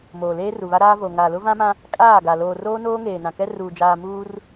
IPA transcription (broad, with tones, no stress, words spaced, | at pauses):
moː˨leː˦ru˨βa˦ ɾaː˦vo˨ ŋa˨lʊ˦ vã˦mã˦ | kʼaː˦˨ɡa˨ loː˨ roː˦noː˦ ŋeː˨nã˨kɛ˦ ruː˨d͡ʒaː˨ muː˦r